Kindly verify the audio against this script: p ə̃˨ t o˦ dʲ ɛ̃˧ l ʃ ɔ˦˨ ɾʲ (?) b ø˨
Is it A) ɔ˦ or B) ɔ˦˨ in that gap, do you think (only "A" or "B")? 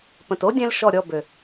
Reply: B